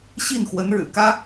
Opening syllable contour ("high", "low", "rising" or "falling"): falling